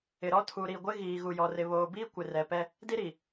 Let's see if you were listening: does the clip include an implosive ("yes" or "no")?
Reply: no